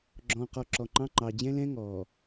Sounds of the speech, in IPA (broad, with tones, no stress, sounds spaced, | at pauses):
ɡ͡ǁ ɔ̃ː˨ q ɔ˨ ǁ ɔ˨ ŋ͡ǃ ɑ̃˦ ŋ͡ǃ ɑ˨ d͡ʑ ɛ̃˦ l ɛ̃˦ ŋ ɔː˨